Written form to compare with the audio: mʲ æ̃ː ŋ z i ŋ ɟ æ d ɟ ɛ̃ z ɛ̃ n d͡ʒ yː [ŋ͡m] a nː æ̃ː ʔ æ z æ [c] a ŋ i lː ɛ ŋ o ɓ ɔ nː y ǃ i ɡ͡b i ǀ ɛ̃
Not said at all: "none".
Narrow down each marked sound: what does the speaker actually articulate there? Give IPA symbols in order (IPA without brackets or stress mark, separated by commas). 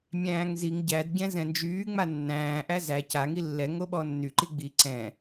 ŋ͡m, c